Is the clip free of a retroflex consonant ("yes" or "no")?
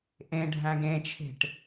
no